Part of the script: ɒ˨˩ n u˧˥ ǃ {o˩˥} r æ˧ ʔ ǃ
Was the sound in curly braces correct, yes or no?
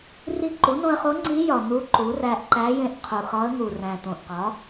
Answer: no